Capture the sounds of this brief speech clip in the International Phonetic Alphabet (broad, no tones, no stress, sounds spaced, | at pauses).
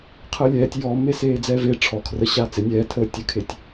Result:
qʰ əː lʲ ɛː tʲ j ɔː mː e s eː d͡z ɛː v e ʈ͡ʂʰ ɔ kʰ r ə ɕ aː t͡s e nʲ ɛː tʰ əː tʲ ə kʰ e tʲ